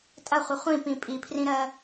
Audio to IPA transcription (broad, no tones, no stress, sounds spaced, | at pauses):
tʼ ɐ χʷ ə χʷ ĩ p ĩ pʼ i pʰ r ĩ ɾ ɜ